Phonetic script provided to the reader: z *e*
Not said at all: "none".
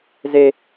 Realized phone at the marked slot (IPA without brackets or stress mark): e